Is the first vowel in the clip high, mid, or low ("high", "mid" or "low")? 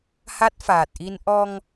low